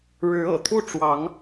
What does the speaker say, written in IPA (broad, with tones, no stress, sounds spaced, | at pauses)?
ɻ ɻ̩˨˦ ɤ̰˨˩ t̪ʰ u˥˨ ʈ͡ʂ w ɑ˨˦ ŋ